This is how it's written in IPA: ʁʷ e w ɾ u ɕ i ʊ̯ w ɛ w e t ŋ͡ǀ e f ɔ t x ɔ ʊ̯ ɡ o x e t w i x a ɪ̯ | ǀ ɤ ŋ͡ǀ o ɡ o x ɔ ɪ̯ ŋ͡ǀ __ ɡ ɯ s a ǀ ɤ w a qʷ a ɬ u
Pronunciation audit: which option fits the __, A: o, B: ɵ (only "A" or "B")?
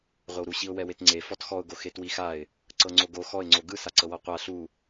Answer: A